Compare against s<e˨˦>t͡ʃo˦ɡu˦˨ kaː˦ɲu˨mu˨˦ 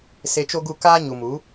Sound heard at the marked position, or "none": e˧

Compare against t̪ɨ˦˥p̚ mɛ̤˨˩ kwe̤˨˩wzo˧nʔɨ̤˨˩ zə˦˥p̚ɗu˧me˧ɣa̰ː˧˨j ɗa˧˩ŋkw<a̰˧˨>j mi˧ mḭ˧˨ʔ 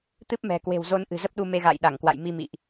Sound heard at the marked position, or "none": a̰˧˨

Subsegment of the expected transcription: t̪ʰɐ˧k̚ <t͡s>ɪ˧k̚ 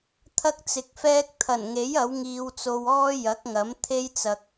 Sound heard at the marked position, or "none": t͡s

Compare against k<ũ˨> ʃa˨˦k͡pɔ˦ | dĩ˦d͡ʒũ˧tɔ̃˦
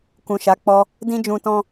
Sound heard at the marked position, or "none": ũ˨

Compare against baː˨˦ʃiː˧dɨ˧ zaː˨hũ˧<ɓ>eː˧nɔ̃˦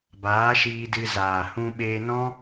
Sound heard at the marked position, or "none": ɓ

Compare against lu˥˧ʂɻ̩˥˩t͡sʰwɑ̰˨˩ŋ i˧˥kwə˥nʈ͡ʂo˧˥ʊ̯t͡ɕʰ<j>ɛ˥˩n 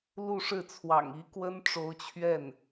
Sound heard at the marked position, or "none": ɥ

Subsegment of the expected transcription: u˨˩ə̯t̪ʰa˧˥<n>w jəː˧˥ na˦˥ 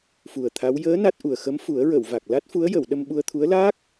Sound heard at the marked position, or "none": none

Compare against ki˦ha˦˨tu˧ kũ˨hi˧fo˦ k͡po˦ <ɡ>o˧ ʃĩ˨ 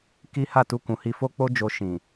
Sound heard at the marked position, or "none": d͡ʒ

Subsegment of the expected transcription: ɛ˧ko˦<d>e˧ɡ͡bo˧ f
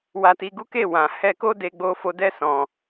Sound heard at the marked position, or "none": d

